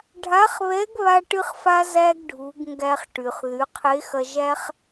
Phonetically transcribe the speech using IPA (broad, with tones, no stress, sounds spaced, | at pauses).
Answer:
ɖʱ a˧˥ χ β ɛ˧˥ ɡ β a˥ ʈ ɨ˥ χ f a˥ z æ˥ ɡ ɖʱ u˩˧ ɡ ŋ ɡ æ˧ χ ʈ y˩ χ ð y˩˧ qʰ e˧˥ x ɐ˧ ʒ æ˥ χ